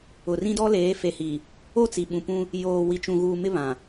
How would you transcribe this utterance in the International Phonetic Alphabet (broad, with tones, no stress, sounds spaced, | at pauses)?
ʊ˨ r ĩ˦ d ɔ˦ l eː˨˦ f e˨ h i˨ | o˦˨ t͡s i˨ ɓ ũ˨ p ũ˦ | j oː˨ w i˨ t͡ʃ ũ˨ ɣ uː˨ m ɪ˦ β ã˨